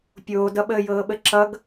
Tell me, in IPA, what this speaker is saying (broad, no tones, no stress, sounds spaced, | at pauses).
pʲ oː d ʌ ɓ əː j ɤː ɓ ə ǁ ʌ ɡ